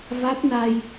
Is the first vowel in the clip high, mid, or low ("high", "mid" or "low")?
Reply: low